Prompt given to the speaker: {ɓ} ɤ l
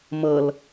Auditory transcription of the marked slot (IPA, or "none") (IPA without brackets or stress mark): m